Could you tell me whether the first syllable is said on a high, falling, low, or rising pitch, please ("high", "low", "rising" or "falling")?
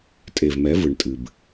low